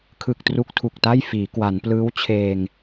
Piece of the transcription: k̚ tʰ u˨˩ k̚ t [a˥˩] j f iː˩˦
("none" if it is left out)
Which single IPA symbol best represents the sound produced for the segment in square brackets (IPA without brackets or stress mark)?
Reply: a˥˩